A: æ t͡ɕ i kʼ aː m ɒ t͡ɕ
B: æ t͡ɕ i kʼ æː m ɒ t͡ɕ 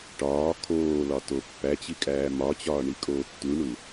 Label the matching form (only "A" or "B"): B